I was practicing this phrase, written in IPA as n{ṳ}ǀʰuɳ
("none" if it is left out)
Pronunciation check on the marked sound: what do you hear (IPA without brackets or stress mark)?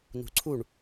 ṳ